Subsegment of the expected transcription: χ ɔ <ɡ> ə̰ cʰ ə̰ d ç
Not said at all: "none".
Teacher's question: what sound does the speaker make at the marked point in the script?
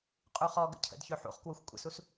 ɡ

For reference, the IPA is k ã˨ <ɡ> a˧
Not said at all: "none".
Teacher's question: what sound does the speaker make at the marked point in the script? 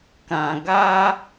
ɡ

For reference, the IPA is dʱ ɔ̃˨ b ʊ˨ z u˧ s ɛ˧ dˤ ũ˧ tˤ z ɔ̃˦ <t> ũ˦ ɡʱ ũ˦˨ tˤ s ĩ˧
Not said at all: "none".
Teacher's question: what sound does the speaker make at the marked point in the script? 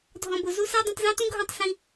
t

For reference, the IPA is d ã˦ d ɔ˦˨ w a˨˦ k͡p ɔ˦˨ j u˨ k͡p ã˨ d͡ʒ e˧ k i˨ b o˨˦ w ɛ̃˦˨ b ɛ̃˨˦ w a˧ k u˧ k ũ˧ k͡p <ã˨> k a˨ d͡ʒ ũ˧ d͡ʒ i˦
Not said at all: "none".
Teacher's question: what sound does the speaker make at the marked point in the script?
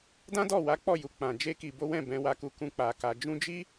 a˨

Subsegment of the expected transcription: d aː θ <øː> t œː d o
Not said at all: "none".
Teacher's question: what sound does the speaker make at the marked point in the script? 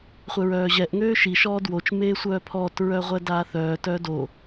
œː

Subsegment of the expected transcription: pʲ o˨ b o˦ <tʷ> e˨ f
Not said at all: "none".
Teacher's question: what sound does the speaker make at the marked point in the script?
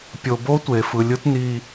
tʷ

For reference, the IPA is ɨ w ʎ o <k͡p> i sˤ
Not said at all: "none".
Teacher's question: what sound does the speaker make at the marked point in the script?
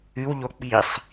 k͡p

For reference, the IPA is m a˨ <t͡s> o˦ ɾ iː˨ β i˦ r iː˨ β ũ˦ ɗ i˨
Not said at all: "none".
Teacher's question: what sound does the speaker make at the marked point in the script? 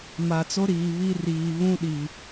t͡s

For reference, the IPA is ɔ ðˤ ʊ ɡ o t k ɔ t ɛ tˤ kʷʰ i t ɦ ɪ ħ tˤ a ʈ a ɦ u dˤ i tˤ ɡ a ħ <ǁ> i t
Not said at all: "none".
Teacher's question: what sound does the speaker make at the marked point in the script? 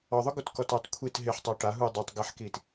k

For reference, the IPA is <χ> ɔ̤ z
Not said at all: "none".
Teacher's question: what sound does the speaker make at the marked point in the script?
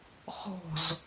χ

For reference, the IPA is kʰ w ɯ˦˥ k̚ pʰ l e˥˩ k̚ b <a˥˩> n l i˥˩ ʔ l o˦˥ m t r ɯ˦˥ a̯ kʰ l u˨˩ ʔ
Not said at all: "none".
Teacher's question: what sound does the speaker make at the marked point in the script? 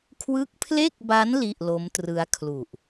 a˦˥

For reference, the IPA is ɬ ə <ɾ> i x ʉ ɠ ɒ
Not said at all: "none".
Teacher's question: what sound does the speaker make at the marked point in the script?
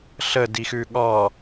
d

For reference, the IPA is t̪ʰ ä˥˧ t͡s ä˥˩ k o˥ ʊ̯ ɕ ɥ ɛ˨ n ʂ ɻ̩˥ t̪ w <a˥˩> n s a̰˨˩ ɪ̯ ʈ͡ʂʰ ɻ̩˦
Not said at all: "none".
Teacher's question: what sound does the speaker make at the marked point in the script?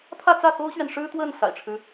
ə˥˩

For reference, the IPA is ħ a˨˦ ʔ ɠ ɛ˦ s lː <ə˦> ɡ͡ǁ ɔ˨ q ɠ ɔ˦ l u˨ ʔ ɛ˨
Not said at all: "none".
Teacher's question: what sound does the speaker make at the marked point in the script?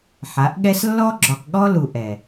ɔ˦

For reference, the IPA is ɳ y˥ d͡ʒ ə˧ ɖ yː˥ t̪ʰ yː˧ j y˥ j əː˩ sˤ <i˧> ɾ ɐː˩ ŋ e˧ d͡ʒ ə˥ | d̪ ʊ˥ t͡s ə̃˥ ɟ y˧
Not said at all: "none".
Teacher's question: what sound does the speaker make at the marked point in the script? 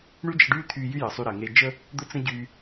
y˧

